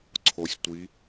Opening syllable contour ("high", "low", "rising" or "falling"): low